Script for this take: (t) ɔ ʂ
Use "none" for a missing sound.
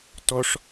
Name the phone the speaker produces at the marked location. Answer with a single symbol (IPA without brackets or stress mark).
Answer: t